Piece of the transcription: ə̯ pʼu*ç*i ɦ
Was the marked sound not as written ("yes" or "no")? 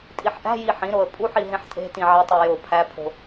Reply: yes